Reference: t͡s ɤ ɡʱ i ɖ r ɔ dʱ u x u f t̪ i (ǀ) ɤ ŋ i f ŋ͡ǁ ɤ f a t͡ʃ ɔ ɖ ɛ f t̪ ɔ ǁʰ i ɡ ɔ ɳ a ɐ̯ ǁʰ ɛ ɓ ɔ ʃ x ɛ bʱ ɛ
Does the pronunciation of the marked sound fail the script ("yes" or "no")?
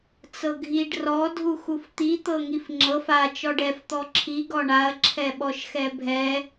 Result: yes